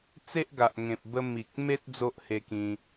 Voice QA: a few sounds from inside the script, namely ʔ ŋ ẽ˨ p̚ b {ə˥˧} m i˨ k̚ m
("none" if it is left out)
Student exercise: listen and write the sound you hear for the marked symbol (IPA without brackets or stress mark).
ə˧